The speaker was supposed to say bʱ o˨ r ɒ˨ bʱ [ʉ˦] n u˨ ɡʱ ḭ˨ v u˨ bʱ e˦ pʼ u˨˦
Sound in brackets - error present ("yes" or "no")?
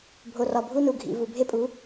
yes